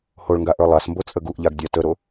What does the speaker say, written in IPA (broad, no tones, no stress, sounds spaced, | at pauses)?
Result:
h o ɭ ŋ ɡ a ʔ ə˞ lˠ a s m b o t͡sʼ ə ɡ u ʔ ʎ a ɡ dʲ a t ə ɾ o